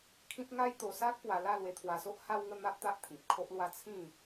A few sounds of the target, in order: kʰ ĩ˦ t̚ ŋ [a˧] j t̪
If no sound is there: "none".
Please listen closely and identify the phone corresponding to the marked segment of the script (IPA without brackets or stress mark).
a˦